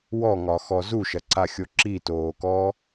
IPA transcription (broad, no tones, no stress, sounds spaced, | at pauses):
w ɔ ŋ ɒ x ɔ z u ʃ ɐ ǀ a xʲ o ǁ i t oː k ɔː